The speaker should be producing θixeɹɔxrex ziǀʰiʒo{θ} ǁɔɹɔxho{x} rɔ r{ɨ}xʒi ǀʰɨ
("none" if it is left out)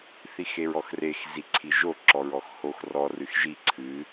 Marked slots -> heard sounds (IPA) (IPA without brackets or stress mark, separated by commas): none, x, ɨ